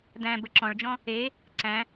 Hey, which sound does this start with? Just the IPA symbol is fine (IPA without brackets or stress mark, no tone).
d̪